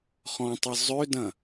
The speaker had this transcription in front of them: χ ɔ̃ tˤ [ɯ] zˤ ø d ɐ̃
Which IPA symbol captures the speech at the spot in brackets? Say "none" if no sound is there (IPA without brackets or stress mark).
ɯ